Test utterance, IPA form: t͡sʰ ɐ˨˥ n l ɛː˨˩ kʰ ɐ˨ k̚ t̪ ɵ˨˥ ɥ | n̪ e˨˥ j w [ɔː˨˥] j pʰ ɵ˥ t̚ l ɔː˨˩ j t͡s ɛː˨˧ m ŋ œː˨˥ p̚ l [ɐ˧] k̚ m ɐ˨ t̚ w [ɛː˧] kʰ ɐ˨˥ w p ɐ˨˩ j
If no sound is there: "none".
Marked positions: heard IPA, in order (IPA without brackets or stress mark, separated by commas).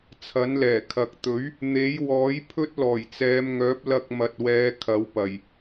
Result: ɔː˨˥, ɐ˧, ɛː˨˧